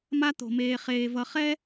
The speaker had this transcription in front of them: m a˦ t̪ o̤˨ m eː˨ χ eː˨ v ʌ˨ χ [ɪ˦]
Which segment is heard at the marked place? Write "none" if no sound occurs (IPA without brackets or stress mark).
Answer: ɛ˦